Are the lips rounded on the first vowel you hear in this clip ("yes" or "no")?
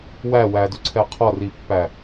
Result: no